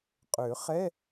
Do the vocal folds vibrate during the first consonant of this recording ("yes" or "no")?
no